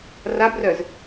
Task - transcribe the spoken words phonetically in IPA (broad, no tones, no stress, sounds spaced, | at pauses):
r a b r œ z